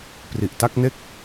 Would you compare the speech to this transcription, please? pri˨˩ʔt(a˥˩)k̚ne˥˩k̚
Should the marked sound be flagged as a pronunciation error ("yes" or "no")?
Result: no